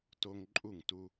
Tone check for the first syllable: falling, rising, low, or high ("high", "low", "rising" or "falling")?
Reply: high